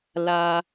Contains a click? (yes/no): no